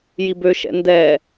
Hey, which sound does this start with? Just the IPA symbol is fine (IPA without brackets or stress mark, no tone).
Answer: j